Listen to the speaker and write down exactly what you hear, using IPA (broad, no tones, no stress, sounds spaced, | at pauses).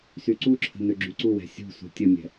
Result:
s y ǀ u ǁʰ ə̤ n ø ɡ͡ǁ y ǀ u w ɛ̤ sʲ ṳ s ṳ tʲ ə mʲ ɛ̤